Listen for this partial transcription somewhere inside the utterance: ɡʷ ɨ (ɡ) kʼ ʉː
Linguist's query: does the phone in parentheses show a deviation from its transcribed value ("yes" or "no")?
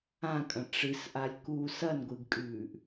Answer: no